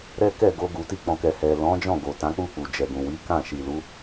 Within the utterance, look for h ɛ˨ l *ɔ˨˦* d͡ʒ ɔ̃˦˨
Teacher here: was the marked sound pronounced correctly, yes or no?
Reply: no